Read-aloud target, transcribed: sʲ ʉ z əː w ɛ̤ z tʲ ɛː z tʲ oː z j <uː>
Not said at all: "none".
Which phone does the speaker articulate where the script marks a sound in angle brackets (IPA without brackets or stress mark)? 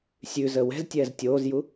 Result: u